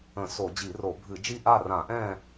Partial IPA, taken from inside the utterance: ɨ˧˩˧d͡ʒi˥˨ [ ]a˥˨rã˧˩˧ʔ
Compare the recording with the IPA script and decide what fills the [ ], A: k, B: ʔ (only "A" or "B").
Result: B